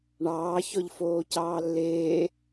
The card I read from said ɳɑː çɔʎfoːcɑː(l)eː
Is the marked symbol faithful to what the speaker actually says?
no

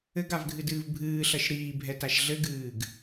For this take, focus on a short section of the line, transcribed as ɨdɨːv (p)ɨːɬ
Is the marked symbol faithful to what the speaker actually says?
no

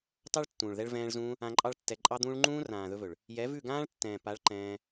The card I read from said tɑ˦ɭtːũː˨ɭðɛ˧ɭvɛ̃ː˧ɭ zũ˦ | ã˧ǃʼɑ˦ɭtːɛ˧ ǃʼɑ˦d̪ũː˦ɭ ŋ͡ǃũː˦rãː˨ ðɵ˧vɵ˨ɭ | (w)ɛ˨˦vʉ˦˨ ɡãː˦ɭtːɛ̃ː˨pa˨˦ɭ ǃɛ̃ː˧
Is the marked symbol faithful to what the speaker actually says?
no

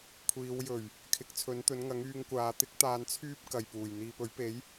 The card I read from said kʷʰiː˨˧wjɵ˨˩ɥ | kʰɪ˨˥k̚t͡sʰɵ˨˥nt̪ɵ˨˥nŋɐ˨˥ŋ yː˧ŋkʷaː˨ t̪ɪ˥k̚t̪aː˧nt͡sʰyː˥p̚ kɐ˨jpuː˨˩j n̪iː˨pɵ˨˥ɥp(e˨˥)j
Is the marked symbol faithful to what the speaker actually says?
yes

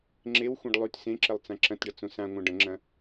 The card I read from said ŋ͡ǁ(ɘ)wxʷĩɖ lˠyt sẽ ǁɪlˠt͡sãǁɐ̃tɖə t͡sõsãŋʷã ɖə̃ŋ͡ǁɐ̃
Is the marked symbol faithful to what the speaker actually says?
no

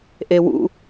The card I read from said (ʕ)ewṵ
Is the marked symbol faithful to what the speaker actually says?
no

